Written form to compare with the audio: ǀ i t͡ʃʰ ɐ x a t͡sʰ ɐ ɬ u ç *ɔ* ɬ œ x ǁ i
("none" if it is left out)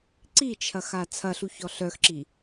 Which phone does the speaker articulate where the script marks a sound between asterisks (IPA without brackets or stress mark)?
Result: ɔ